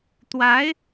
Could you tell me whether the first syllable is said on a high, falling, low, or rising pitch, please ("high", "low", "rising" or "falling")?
rising